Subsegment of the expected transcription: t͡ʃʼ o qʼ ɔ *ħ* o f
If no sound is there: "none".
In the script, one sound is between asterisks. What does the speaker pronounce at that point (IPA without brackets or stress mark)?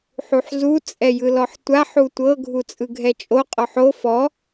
ħ